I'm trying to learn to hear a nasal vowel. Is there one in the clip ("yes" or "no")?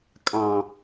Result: yes